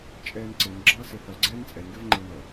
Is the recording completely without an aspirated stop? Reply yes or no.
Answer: yes